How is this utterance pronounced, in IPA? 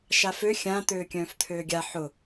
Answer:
ʃafø xʲã t̪øːkʲœ̃ːft̪ʰøːɡʲa ħʊ

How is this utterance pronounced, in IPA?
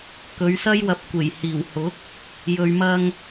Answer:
kɵ˨˧ɥsɐ˥jwɐ˧p̚kʷe˨˩j hiː˨˩whʊ˨˥k̚ | jɵ˨ɥmɐ˧ŋ

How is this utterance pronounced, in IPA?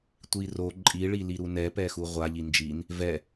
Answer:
tʷiro ǃʼiɭili ɾunɛpɛxu ʁʷa ʎind͡ʒin | vɛ

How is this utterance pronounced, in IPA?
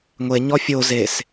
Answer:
ŋʷeɲɔ fʲo zes

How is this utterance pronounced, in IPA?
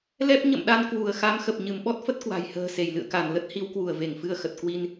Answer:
lɛ˦˥p̚ ɲə̰˧˨mɗa˧nkwu˧˩ə̯xa˨˦m xə˨˩p̚ ɲɨ˧˩mɓɔ˦˥t̚fə˦˥t̚ kwa̤˨˩jhə̤ː˨˩se˧˩j lɨ̰˧˨ə̯ka˧˩n lə˦˥t̚hi˨˦wkwu˧˩ə̯ ve˧˩ŋfɨ˧ə̯xə˨˩t̚ kwi˧n

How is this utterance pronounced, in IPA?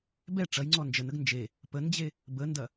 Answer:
bɛ ʈ͡ʂɐjŋ͡ǀɔ nd͡ʒənəɡ nd͡ʒe | pənd͡ʑe | bəndɐ

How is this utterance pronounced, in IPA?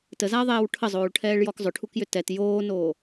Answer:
təzaɐ̯ðˤɛːw ʈʰəzˤoːɭʈʰɛːɭjɔk zˤʏʈʰukjʏ tɛt joːnoː

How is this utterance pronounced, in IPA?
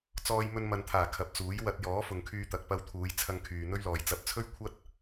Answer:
t͡sɔː˧jmɵ˧n mɐ˨nt̪ʰaː˨˩ kʰɐ˨p̚t͡suː˨˥j wɐ˧t̚ jɔː˨˥fʊ˨ŋkʰyː˧t̪ɐ˨k̚ pɐ˧wt̪ʰuː˨˧jt͡sʰɐ˧ŋ kʰyː˨n̪ɵ˥ɥlɔː˨j t͡sɐ˧p̚ t͡sʰɵ˥ɥkʷʰɐ˥t̚

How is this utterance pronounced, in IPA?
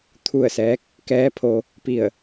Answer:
t̪ʰu˥˨ə̯sɛː˧˥k̚ | kɛː˧˥pʰo˧ | pi˥˨ə̯

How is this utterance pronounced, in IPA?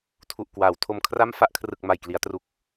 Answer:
tʰu˨˩ʔkwaː˩˦wtʰo˧m kʰra˥˩mfa˥˩ʔkʰrɯ˨˩k̚ ma˨˩jkli˩˦a̯tru˨˩k̚

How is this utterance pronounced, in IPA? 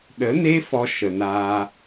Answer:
ɗə˨˦ne˦ fɔ˧ ʃə˨naː˧

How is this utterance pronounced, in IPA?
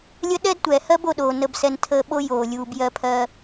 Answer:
lʲə˦ɗɛ˥dtʷɛ˩hɜ˥b o˦ɗoː˨nə˦bsɛ˦n tʰəː˥ ɓo˥joː˩lʲuː˨b jɜ˥pʰɜ˦

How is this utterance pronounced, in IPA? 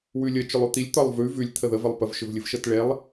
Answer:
wʉlʲə t͡ʃʏlˠʉt̪ilʲ t̪ɒlˠvʉ vʉlʲ t̪ʰəðə vəlˠpəv ʃʏvlʲɨvʃətɭelˠ

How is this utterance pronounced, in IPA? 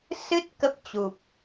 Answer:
sɨ˦˥t̚ kə˦˥p̚t͡ɕu˨˩p̚

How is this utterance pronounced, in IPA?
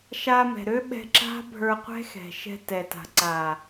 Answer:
ʃa˧ mɛ̤˨ɾø˦ɓɛ̤˧ ǁa̤˦bʱə˞˧qʷɛ̤˦ xɛ̤˨ʃɛ̤˧tɛ˨ta̤˨ ǀa˨

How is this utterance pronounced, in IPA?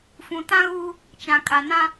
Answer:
fũ˨tã˦ɣuː˦ | t͡ʃã˨kʼa˨ nã˦

